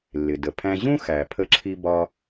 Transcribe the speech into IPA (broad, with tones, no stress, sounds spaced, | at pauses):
lː ɪ˩ d ə˩ pʰ æ̃˧ ʑ ũ˥ x æ˩ pʰ ə˧ ǁʰ i˧ b ɒ˧